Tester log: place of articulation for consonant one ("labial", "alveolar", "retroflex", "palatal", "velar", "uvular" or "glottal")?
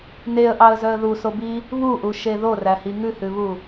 alveolar